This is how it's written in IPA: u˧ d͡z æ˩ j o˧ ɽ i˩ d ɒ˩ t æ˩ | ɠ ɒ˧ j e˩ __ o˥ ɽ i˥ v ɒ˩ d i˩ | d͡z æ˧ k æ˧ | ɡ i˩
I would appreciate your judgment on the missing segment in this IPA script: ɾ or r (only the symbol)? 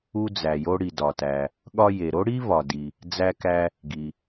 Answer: ɾ